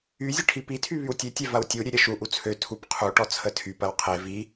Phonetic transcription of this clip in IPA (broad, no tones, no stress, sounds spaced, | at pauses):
y zʲ ə ʈʰ i p i tʰ y β y w tʲ e tʲ ɛ v ɐ w tʲ u ɾʲ ø ɾʲ ɐ ʃ u ʔ u t͡sʰ ø tʰ u p qʰ u ʈ ɔ t͡sʰ ə tʰ y p ɐ w qʰ e v i